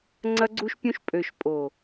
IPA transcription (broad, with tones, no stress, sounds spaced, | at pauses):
ŋ͡ǀ ɐ˧ ɡ͡ǀ u˧ ʃ pʲ ũ˧ ʃ pʼ ø˨ ʃ pʼ o˨